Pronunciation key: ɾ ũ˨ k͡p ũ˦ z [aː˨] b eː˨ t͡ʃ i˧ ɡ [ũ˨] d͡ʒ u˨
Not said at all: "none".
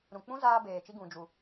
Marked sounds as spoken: aː˧, ũ˨

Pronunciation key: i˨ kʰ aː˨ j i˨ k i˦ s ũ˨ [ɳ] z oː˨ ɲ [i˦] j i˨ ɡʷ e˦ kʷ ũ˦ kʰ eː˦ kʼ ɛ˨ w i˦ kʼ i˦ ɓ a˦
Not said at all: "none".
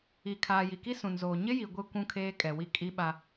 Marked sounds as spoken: n, ɪ˦

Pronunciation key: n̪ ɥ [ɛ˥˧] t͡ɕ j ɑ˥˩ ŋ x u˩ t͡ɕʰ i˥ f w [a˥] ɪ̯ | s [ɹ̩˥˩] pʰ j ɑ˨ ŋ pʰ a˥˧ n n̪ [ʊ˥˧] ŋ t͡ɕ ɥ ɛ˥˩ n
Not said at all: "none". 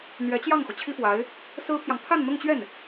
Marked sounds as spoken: ɛ˧˥, a˧˥, ɹ̩˥, ʊ˥˧

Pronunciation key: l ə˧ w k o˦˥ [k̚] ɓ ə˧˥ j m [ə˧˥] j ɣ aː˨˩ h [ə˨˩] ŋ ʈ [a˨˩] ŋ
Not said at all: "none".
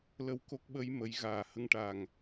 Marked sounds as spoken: k̚, ə˨˩˦, ə˧, a˨˩

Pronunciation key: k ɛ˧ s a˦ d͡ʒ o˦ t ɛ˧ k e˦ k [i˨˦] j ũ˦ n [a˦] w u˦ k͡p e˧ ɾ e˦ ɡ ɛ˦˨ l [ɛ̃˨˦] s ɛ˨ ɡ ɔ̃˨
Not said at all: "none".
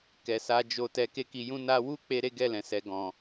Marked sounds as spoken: i˧, a˦, ɛ̃˨

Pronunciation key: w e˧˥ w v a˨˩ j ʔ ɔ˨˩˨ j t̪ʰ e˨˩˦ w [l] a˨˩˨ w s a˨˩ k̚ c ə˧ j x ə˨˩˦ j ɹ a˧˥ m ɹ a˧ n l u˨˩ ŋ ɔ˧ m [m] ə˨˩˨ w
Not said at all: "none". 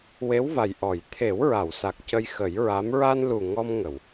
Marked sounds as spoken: ɹ, ŋ

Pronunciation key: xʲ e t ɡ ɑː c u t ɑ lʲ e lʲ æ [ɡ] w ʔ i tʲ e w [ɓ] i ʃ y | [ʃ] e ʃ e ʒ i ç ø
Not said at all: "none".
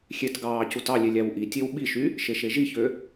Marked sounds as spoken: none, ɓ, ʃ

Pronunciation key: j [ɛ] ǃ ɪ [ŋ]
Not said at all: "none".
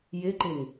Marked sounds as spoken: ɪ, ŋ

